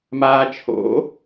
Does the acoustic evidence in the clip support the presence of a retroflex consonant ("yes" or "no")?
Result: no